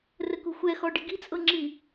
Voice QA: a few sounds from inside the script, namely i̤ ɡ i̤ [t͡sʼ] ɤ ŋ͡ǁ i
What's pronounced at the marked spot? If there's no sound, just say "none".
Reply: t͡sʼ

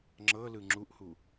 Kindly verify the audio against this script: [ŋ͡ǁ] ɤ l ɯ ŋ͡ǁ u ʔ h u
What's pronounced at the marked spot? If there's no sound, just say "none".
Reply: ŋ͡ǁ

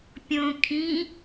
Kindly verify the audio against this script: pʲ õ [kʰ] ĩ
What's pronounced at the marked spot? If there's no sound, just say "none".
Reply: kʰ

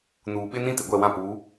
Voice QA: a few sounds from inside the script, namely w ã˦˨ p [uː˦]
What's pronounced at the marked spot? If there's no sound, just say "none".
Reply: uː˨˦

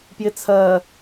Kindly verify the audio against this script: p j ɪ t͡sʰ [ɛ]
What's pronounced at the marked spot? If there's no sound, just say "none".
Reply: ɜ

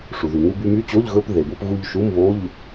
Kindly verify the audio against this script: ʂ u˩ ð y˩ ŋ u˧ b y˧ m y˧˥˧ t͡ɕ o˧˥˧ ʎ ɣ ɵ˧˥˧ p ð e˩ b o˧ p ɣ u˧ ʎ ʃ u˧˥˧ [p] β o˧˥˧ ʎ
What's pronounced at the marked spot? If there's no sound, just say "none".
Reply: m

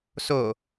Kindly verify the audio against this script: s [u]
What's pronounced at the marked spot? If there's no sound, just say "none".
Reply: o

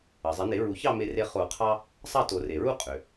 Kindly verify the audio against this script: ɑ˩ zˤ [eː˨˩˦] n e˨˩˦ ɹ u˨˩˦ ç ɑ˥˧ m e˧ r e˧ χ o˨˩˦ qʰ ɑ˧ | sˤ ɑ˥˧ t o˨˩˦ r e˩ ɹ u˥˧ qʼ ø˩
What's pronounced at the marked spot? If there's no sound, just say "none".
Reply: e˨˩˦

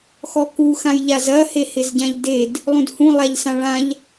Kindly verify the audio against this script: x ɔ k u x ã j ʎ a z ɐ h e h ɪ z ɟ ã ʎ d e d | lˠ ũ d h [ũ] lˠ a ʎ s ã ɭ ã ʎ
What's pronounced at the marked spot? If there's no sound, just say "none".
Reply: ũ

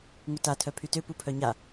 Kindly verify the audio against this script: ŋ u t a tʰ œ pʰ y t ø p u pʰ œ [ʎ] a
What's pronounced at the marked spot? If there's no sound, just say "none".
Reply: ɲ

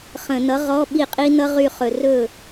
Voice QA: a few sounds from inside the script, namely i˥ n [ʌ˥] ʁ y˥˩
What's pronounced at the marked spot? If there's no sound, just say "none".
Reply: ʌ˥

